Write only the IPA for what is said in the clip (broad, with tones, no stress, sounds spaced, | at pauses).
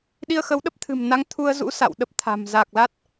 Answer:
ɗ i˧ ə̯ x ə˨˦ w ɗ ə˦˥ p̚ t̪ʰ ɨ̤˨˩ m n a˨˦ ŋ t̪ʰ u˧ ə̯ z ṵ˧˥ s a̰˧˨ w ɗ ə˦˥ p̚ t̪ʰ a̤˨˩ m z a˨˩ k̚ l a˦˥ t̚